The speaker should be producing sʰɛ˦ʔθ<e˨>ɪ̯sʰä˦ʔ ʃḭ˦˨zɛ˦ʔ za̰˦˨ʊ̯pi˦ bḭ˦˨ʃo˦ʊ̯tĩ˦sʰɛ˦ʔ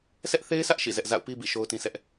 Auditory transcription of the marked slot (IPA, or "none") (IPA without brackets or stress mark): e˦